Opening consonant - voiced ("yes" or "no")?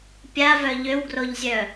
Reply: no